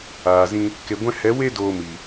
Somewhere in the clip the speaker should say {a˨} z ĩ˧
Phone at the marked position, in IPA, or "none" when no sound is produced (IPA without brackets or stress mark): aː˨